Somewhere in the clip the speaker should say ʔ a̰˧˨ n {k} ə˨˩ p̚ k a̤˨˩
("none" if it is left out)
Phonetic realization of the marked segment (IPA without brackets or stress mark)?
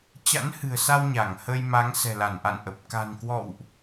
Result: ʔ